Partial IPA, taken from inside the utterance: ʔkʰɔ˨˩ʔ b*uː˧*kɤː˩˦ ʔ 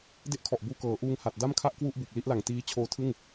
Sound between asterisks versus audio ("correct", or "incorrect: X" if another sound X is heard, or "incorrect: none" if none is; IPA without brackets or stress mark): correct